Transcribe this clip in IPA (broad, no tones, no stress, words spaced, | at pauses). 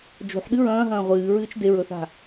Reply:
d͡ʒo̤ħɗɨ ɹɐ̃ːɦɐ̃ː ʁʷɨːɹɨːt͡ʃ deɹɵθa̤